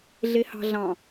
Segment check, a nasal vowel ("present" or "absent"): present